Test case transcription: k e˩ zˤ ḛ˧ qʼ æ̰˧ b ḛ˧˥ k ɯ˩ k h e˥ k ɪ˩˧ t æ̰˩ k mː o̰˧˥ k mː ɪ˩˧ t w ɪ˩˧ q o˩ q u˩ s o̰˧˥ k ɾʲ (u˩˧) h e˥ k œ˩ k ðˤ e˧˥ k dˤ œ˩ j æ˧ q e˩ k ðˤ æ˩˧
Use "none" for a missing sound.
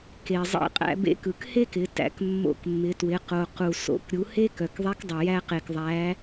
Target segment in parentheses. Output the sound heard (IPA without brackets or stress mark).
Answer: u˩˧